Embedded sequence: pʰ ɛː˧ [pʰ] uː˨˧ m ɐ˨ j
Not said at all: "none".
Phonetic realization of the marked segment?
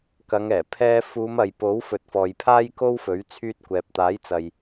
f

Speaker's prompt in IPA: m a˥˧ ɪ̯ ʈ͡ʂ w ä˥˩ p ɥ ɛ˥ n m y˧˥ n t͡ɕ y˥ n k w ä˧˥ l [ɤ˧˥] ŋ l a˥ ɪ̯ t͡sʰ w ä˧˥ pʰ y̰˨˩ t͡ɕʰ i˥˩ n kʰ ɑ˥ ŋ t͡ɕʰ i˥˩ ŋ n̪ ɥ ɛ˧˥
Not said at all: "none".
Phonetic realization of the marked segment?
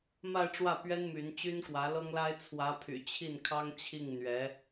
ɤ˥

